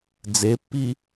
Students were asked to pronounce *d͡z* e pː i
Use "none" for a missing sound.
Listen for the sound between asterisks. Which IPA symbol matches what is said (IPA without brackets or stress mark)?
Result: d͡z